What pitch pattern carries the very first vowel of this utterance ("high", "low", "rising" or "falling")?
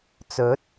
rising